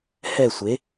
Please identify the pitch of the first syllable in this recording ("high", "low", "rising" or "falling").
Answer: falling